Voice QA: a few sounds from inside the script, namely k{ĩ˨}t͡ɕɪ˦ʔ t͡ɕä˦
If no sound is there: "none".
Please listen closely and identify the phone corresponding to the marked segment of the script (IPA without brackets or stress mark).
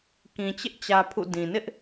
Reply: ĩ˨